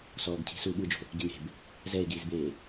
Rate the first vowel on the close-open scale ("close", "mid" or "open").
mid